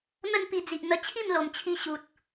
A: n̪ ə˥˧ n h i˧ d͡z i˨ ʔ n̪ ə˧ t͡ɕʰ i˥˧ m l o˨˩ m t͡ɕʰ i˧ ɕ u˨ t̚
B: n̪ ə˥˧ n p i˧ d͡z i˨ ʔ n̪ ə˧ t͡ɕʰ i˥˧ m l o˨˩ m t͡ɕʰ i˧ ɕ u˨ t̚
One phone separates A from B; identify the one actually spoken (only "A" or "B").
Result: B